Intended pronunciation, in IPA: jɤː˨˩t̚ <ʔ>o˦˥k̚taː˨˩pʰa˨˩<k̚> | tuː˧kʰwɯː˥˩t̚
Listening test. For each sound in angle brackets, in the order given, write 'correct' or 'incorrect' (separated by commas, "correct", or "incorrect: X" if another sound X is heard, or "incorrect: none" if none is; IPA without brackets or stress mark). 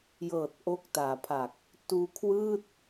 correct, correct